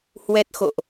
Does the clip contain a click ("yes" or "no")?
no